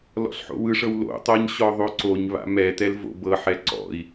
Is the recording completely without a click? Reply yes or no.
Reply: no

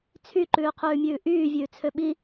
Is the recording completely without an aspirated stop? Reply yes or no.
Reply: no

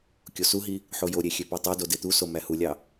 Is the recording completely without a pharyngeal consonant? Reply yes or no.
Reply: no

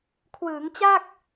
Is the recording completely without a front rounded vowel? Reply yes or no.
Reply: yes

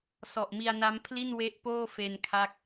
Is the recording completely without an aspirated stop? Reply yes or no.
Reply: no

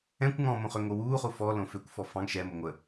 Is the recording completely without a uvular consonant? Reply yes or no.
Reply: no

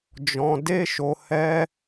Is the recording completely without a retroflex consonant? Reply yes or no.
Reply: yes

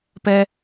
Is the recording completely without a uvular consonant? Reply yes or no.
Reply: yes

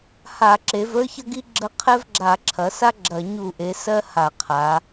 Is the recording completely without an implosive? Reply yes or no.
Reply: yes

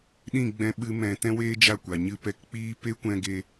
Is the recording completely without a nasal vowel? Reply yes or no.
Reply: no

